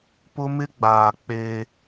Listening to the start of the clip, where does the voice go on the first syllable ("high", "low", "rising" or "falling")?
high